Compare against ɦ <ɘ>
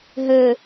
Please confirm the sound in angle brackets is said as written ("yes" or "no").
yes